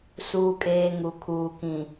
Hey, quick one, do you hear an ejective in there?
yes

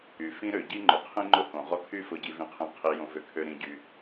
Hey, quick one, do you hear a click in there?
yes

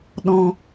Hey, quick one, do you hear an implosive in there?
yes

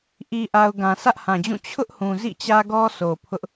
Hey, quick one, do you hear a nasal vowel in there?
yes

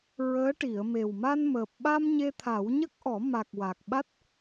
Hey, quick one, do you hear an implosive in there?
yes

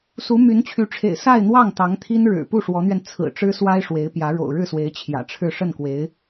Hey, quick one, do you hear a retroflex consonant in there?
yes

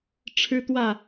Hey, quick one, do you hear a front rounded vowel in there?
no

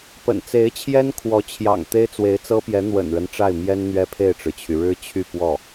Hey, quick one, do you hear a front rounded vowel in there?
yes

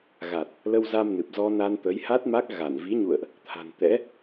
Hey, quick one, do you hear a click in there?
no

